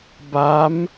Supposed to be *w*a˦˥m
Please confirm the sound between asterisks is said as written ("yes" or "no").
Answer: no